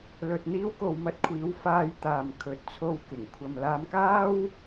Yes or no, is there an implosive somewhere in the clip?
no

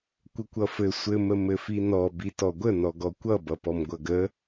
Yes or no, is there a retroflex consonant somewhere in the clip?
no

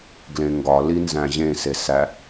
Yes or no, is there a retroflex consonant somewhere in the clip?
no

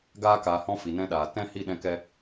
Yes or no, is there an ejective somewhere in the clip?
no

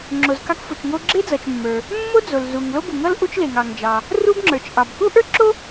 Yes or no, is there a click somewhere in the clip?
yes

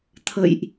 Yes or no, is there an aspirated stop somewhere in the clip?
yes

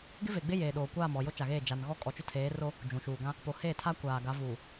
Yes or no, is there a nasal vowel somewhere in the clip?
yes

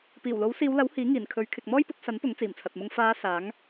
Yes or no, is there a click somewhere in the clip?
no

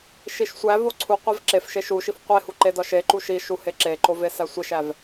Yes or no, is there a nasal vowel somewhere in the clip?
no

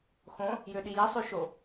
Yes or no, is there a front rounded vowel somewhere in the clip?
yes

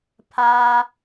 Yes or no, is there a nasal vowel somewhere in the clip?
no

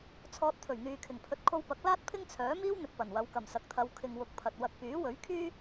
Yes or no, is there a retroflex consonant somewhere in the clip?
no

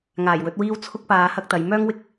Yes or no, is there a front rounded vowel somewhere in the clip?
yes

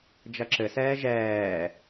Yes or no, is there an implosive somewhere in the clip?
no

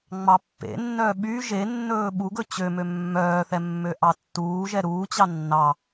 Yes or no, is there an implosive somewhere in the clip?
yes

